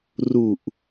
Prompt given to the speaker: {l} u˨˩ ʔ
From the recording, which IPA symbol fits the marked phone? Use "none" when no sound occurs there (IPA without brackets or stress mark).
r